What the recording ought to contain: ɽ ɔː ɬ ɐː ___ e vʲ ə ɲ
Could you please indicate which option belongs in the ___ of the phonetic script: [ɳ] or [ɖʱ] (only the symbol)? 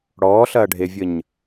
ɖʱ